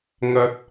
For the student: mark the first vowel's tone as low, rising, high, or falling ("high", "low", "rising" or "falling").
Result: low